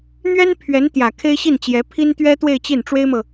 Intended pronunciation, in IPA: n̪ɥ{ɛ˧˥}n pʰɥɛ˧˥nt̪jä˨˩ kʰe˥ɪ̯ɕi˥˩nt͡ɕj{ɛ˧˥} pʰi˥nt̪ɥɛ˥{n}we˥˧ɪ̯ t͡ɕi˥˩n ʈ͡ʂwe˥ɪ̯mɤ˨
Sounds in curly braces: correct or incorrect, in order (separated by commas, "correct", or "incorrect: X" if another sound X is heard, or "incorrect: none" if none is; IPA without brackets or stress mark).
incorrect: ɛ˥, correct, incorrect: t̪